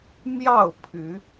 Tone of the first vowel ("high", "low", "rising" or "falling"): falling